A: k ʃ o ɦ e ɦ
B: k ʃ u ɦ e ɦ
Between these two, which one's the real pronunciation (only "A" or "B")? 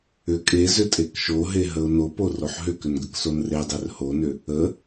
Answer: A